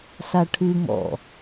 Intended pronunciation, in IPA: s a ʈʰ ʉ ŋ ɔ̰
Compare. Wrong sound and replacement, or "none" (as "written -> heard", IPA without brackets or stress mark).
none